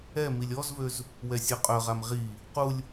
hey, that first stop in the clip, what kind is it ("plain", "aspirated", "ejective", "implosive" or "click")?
ejective